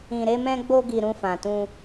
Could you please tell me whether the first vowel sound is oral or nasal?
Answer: nasal